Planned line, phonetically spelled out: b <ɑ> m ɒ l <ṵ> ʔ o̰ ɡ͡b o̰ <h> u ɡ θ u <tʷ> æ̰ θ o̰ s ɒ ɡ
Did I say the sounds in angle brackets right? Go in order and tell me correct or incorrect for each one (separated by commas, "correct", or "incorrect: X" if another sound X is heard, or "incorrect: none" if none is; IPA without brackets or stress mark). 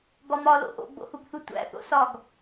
incorrect: ɒ, incorrect: o̰, correct, correct